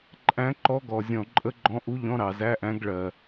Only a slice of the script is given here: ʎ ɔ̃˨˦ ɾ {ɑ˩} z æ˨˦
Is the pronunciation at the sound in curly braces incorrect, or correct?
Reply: correct